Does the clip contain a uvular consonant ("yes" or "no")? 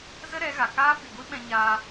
no